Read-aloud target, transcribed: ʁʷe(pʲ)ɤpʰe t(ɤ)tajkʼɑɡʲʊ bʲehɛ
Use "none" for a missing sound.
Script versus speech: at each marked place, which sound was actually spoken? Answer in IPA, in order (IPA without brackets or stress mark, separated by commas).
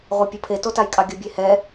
pʲ, o